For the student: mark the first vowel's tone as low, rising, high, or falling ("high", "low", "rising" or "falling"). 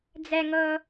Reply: low